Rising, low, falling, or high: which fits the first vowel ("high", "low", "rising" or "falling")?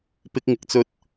high